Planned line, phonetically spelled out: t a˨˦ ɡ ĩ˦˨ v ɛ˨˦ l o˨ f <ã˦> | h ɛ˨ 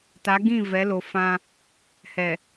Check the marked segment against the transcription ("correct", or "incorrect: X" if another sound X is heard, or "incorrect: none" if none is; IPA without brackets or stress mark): correct